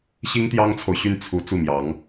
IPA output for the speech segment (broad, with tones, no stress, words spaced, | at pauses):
ɕi˥ŋt̪jɑ˥ŋt͡sʰo˨ʊ̯ɕy˥˩n t͡sʰu˧˥ t͡su˥˩mjɑ˧˥ŋ